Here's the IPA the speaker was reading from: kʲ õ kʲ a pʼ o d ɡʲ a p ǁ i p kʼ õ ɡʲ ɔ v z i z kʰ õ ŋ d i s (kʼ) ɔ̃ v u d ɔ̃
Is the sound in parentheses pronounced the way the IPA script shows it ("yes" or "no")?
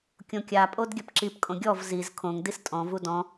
no